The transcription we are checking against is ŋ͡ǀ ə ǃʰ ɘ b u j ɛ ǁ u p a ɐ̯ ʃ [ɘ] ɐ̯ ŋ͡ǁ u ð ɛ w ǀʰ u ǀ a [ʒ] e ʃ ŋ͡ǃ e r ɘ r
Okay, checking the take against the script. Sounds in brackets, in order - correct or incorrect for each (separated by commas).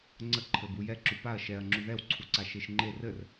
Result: incorrect, incorrect